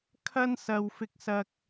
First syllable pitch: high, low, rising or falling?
high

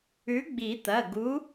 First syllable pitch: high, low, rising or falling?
rising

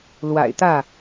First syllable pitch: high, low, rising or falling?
low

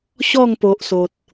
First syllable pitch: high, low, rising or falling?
falling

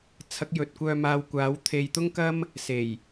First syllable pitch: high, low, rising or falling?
rising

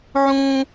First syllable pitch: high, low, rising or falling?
high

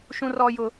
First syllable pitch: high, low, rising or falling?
high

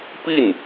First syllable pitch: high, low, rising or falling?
falling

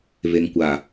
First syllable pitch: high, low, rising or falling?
low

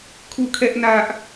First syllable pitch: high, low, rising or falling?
falling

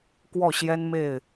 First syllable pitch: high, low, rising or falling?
falling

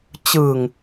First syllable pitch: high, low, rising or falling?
low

